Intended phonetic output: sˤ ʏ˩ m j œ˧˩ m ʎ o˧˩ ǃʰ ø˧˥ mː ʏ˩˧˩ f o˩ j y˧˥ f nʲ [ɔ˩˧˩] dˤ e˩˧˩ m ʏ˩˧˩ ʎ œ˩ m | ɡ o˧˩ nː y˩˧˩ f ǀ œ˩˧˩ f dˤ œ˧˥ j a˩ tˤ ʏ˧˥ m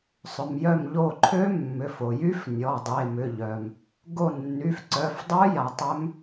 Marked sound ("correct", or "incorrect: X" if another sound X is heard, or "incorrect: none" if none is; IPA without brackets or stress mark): correct